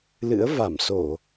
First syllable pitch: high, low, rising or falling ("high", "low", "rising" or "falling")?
rising